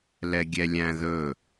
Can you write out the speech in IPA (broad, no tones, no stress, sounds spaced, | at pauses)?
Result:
l ɛ ɡʲ ɛ lʲ æ̃ ð ɵ